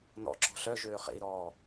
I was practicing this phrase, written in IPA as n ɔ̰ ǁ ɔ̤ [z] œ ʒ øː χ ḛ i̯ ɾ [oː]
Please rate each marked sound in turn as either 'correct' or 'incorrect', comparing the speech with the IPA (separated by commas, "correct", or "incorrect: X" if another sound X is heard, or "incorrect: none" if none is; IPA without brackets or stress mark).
incorrect: ɬ, incorrect: ɔː